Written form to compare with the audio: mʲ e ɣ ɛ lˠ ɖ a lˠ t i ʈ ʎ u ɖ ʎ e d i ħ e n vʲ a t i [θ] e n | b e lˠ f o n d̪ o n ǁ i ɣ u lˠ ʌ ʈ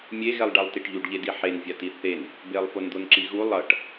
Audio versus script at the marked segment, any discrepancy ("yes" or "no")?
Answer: no